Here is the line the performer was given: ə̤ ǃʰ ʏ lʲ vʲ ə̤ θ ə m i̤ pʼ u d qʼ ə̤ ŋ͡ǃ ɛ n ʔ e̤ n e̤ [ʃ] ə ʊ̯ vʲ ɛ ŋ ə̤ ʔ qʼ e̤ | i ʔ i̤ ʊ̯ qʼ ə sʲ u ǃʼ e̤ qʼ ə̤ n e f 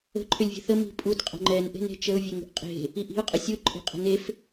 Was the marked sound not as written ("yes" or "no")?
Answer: yes